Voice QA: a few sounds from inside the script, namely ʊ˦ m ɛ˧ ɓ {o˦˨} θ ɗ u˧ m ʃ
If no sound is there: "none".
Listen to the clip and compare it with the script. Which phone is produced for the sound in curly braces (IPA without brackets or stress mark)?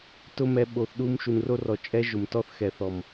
o˨